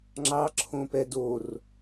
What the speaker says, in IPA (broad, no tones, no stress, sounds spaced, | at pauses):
ŋ͡ǁ ɑ ǁʰ õ p ɛ d o r